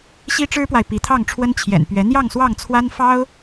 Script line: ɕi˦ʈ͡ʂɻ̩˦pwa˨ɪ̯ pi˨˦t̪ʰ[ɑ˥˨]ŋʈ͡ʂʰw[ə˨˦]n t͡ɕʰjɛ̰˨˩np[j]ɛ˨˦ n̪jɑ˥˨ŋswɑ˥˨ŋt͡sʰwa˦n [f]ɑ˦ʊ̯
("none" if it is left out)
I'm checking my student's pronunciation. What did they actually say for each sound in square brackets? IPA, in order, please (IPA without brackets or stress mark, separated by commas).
ɑ˥˨, ə˦, ɥ, f